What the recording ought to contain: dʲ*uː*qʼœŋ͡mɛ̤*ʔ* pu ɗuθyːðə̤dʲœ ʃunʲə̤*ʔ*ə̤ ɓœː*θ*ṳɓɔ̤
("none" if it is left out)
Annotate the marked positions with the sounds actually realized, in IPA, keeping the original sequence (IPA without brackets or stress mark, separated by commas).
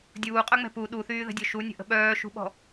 uː, none, ʔ, ʃ